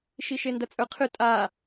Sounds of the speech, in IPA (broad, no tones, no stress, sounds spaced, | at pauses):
ʃ i ʃ e n d ɐ t͡sʼ ɵ qʰ ɨ tʼ a